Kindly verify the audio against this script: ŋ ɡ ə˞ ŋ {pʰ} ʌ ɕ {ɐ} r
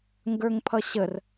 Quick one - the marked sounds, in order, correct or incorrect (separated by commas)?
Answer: correct, incorrect